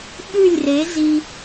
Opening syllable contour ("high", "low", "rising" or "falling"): falling